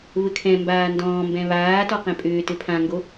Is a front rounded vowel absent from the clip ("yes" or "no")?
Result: no